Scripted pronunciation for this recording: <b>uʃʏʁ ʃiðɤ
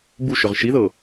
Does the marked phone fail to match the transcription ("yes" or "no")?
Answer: no